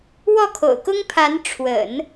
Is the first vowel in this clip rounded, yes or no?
yes